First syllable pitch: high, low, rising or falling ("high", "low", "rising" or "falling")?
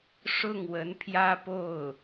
falling